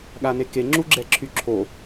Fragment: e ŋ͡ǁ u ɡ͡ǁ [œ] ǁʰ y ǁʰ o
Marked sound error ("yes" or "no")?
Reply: yes